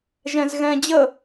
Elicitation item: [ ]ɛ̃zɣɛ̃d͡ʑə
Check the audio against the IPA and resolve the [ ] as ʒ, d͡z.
ʒ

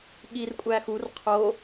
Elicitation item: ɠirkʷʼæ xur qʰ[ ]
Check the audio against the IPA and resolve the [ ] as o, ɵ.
o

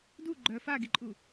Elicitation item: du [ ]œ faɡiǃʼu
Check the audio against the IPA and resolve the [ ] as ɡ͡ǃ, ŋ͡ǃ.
ɡ͡ǃ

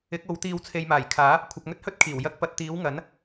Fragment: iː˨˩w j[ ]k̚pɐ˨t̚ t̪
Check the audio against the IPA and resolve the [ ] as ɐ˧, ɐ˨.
ɐ˧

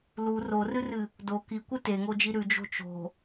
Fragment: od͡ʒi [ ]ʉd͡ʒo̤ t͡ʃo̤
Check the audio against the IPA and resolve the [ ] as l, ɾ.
ɾ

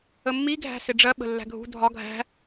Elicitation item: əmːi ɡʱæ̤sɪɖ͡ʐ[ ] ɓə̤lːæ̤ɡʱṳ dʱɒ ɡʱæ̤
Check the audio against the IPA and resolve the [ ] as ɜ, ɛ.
ɜ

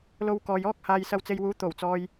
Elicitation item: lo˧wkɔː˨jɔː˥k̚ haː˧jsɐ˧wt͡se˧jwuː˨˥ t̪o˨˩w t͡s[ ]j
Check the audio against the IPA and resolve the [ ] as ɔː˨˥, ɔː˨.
ɔː˨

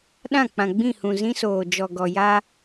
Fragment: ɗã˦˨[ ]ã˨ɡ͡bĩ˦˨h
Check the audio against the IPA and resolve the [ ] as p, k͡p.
k͡p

